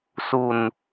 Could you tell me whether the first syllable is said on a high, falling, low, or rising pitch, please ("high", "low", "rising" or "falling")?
falling